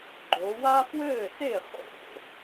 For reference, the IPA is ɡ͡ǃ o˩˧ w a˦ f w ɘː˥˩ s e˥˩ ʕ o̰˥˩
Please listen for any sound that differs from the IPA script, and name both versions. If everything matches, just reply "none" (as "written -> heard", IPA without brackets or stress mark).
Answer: ʕ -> χ